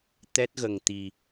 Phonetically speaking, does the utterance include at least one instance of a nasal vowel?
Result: no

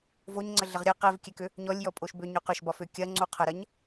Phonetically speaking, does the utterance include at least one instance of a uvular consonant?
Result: yes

